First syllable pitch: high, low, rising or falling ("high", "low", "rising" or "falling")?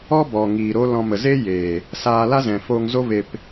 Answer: high